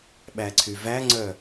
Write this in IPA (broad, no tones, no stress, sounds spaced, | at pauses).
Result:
ɓ æ ǀʰ y v æ ŋ͡ǀ œ